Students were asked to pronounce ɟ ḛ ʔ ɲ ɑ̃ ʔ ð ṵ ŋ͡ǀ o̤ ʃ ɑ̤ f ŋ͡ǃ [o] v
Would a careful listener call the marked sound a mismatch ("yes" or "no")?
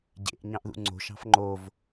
no